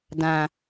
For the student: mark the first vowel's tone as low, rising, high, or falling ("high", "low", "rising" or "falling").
low